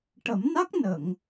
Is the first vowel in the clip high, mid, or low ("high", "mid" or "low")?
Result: mid